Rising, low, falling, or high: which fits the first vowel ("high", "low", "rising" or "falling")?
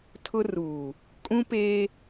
high